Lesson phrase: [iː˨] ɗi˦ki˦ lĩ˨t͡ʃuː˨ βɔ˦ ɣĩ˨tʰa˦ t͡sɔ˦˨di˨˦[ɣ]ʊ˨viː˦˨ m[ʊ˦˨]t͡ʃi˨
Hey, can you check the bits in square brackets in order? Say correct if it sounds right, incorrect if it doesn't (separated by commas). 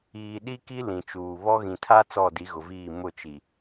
correct, correct, correct